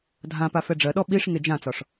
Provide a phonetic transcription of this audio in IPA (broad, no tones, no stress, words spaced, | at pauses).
dʱãpa fɛɖ͡ʐɜɗɔ ɓiʂ ŋed͡ʒãt͡sɒʂ